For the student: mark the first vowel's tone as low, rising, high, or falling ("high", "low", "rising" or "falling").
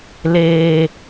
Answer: low